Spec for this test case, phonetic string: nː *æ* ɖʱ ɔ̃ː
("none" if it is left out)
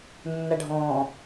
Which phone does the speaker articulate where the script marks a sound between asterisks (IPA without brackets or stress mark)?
a